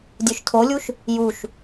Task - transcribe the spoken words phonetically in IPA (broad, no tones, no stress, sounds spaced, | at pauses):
dʲ ø ʃ tʰ o lʲ u ʃ | j u ʃ